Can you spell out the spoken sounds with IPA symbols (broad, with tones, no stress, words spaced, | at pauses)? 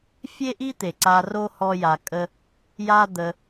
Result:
fʲe˦ʔi˦t̪e˨ ǀa˧ro˦ hɔ˦ja˧kʼə˦ | ja˦d̪ə˧